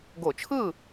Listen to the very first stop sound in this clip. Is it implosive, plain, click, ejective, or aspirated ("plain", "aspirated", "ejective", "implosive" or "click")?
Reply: plain